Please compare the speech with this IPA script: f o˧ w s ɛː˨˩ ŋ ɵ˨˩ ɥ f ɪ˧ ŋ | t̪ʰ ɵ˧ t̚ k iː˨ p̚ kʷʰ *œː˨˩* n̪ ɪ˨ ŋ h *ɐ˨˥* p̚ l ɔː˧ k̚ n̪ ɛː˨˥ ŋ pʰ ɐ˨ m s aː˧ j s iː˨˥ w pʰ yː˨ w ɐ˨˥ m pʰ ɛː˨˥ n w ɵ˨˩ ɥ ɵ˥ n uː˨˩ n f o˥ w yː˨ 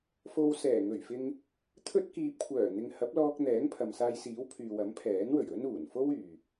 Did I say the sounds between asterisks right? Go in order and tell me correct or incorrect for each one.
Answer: correct, correct

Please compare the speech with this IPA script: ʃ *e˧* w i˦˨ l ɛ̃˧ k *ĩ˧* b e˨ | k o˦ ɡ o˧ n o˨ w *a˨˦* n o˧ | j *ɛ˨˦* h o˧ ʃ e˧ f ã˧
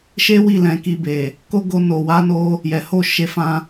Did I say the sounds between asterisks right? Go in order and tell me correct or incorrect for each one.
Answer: incorrect: e˦, incorrect: i˧, correct, incorrect: ɛ˨

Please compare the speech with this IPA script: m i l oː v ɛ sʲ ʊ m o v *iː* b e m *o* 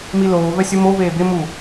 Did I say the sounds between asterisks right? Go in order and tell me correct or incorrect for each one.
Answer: incorrect: eː, incorrect: u

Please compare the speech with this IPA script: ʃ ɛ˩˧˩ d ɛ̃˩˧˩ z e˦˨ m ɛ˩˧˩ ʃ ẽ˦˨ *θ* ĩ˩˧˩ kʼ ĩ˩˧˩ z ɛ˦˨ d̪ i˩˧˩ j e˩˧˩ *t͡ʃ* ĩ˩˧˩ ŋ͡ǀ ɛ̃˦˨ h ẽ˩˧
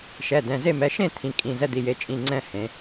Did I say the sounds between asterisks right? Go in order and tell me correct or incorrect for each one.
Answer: incorrect: t̪ʰ, incorrect: t͡ʃʼ

